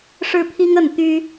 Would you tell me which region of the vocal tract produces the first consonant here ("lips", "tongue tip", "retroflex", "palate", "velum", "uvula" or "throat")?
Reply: retroflex